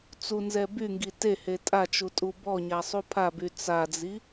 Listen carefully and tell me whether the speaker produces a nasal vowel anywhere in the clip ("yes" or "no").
no